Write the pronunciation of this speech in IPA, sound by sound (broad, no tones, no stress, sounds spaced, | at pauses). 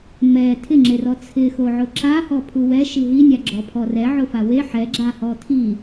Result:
m ɛ tʰ ɪ ŋ͡ǁ e r ɔ t͡sʰ ɪ x o ʕ ʊ ǁ a h ɔ pʰ u w ɛ ʃ i ɦ i nʲ a ɡ͡ǁ ɔ pʰ ɔ r ɛ ʕ ʊ f a w e ħ ɛ ɡ͡ǁ a h ɔ tʰ i